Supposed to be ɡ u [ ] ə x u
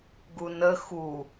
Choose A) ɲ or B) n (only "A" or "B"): B